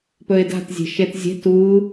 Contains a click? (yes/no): no